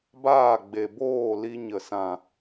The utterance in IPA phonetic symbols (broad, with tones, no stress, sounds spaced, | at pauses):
b aː˦˨ ɡ͡b e˨ b oː˦˨ l i˧ ɲ ə˨ s ã˨